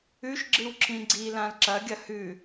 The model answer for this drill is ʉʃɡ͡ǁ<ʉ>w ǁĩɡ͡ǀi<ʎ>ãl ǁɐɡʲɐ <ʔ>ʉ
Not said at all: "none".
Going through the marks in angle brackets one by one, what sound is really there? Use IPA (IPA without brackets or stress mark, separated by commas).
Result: ɨ, l, h